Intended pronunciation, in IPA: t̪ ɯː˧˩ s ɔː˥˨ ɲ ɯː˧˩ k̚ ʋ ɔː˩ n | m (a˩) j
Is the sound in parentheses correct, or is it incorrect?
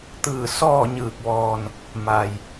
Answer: correct